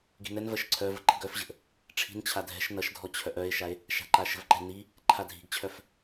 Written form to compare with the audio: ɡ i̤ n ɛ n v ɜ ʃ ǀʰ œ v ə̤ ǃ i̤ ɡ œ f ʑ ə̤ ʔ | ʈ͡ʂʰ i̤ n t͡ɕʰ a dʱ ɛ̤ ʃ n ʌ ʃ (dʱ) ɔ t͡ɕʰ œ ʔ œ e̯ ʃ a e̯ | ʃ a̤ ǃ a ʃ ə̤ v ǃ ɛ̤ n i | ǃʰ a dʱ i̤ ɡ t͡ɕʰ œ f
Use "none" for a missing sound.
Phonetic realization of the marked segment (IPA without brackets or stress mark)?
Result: dʱ